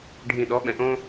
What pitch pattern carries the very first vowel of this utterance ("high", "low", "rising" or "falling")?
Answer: low